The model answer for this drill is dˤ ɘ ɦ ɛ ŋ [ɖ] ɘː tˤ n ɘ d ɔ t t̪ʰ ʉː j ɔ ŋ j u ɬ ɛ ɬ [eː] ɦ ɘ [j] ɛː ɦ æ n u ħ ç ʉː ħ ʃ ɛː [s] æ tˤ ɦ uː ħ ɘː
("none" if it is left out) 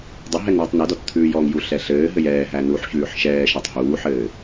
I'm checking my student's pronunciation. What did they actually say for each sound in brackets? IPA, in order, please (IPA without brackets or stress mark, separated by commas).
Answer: ɳ, ɘː, j, ʃ